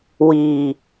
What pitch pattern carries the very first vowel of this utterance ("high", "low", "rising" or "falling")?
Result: low